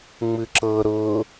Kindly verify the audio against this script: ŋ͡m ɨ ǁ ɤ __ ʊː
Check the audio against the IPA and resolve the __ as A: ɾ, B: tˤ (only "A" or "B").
A